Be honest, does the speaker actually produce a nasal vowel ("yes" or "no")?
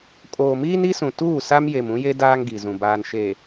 yes